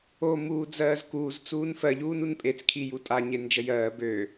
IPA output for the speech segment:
o muːd͡zɜːzkuːz t͡suːnfɜ ʎuːnunpʼet͡s kʰijutʼa ɲend͡ʒəjɜː bø

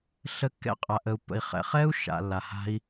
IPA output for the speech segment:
ɬə˧ kːɛ̰˧qʼa˨ʔə˨u̯pːə̰˨i̯ χɛ̰˨χɛ˦u̯ ʃa̰˨lːa˨ha̤˧i̯

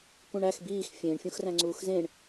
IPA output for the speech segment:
kũɳæx biːx fʲẽɳ fʲũxræ̃ŋ͡ǀuːxzẽɳ

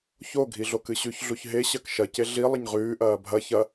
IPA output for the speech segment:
ço ɡʱiɮokɨɕʉç ɮuçɦe ɕɐkʃɐ ceɮi lˠɐɲʁʉː ʔɐːbʱɐ çɐ

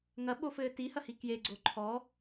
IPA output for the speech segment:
ŋɐɓofɘː tihɐhi kjeɡ͡ǀo ǃʰɔ

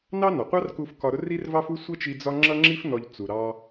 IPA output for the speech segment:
nɑ˥nɒ˩qʷɑ˥rku˧f kɒ˧ɾʊ˥ ri˥rvɑ˥fu˥ sʷʌ˥t͡ʃi˧ d͡zɒ˥ ŋ͡ǁʌ˥ŋ͡ǁi˥f nɔ˧ʎ t͡su˩ɾɑ˧

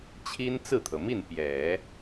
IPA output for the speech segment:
t͡ɕʰi˥n t͡sɹ̩˥˩t̪ʰɤ˩mi˥˩n pjɛ˨˩˦

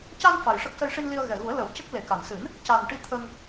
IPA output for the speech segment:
ca˧n fa˨˩jʂə˦˥k̚ sə˧jʂi˧nli˧ə̯ ɣɛ˨˩ɣu˨˩˦ə̯lə˨˩˦wcə˦˥k̚ le˨˩˦ka˨˩n sɨ˨˩˦n | ca˨˩nʈi˧ t̪ʰə˧ŋ

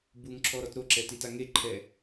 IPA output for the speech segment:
buŋǁʰɔɾɔt ɾoǁɛtita ŋeǃʰɛ

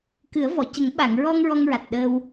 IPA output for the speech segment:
kɨ˨˩˦ə̯vɔ˨˩˨cə˨˩˦ŋ ɓa˨˩˨ŋɹɔ˧ŋ ɹɔ˧ŋɹa˨˩t̚ɗəː˧w

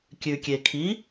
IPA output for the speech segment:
kʲʉkʲekʰi

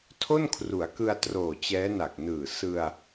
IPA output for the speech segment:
tʰo˥˩nkʰru˩˦a̯kɯ˧a̯ troː˨˩t͡ɕɛː˦˥na˨˩k̚ nɯː˨˩ sɯ˧a̯

